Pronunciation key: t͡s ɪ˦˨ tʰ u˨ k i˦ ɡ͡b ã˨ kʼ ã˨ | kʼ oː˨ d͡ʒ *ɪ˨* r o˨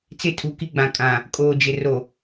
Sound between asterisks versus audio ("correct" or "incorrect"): correct